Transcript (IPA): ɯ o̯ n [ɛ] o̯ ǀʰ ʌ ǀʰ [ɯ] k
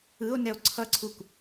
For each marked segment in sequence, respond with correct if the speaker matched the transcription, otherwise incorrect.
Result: correct, incorrect: u

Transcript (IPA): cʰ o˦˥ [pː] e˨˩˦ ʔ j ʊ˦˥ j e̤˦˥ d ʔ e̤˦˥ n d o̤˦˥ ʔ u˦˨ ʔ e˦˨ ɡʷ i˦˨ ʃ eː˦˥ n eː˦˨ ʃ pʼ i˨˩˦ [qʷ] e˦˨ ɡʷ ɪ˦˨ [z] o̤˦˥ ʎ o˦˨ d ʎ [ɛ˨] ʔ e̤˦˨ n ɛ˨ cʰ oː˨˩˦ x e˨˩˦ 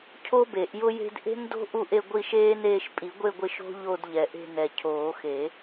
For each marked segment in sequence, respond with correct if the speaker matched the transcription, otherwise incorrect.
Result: incorrect: b, incorrect: ɡʷ, incorrect: ʃ, correct

